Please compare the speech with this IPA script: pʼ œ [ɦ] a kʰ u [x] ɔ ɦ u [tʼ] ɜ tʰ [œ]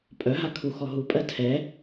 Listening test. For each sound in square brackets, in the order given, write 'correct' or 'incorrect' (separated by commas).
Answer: correct, correct, incorrect, incorrect